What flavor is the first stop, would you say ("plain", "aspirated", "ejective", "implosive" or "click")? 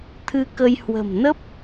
aspirated